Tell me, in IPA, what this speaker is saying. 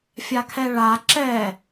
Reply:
fʲ a kʰ ɛ ɭ a ǁ ɛ

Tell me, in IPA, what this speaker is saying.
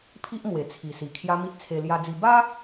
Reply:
pʰ i˦ ʔ m w e˨˩ t͡sʰ i˨˩ s i˨˩ kʰ j a˦ m i˦ t̚ t͡sʰ e˧ l j a˧ d͡z i˧ b a˦

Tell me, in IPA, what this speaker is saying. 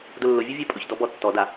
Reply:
d ʊ lː ʊ vʲ ʊ vʲ ɛ pʼ ʊ ç d ɔ b ɔ tː ɔ d a

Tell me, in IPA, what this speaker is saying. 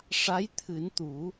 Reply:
ʂ a˧˥ j t̪ʰ ɨ˨˩˦ n t̪ u˨˩˦

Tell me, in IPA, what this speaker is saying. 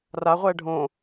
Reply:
r a ʁʷ ɛː ɖʱ õ

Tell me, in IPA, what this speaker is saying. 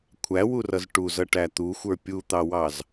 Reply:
kʷʰ æ w u r ʌ z ʈ u z ʌ ʈ æ t̪ u xʷ ə˞ pʲ u t̪ ɑ w ɑ z

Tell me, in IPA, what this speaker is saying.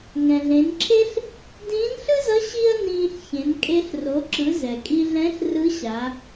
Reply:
ŋ ɛ̃˩ ɮ ẽ˩˧ n ǁʰ e˥ ɬ | d ĩː˧˥ n ɬ ɯ˥ z ʌ˧˥ ɕ i˥ ɐ̯ n ĩː˧ ɬ ç ẽ˩˧ n kʼ e˧ ɬ r o˩˧ ǁ ɯ˩˧ z ɛ˩ kʼ i˧ ɮ ɛ̃˧˥ ɬ r ɯ˧˥ ɕ a˩˧

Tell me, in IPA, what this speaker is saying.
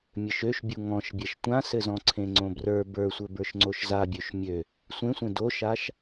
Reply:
mʲ ɘ ʃ ø ʃ bʲ u ŋ ɔ̃ ʃ bʲ ɛ ʃ tʷ ã s ɘ z ɔ̃ ǀʰ ẽ ŋ͡ǀ õ b r ə˞ b ə˞ sʷ ɘ b ə˞ ʃ ŋ͡ǀ o ʃ z a bʲ ø ʃ mʲ ø | sʷ ẽ sʷ ẽ d o ʃ a ʃ

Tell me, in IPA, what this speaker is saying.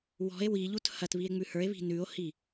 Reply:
w ɔ̤ e̯ w i ʎ u t h ɐ t β i e̯ ŋ͡m ʉ h ə˞ e̯ β i̤ n ʉ o̯ h i

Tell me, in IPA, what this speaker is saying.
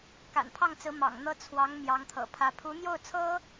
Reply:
k a̰˨˩ n pʰ ɑ˥˩ ŋ t͡s ɹ̩˧˥ m ɑ̰˨˩ ŋ n̪ ɤ˥ t͡sʰ w ɑ˧˥ ŋ m j ɑ˧˥ ŋ t̪ʰ ɤ̰˨˩ pʰ ä˧˥ pʰ u˧˥ n̪ j o˥˩ ʊ̯ t͡sʰ ɤ˥

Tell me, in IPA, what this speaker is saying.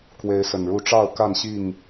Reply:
k w e˨˦ ɪ̯ s ə˨˩ n ɻ u˥˨ ʈ͡ʂ ɑ˥˨ ʊ̯ k a˥˨ n ɕ i˥˨ ŋ

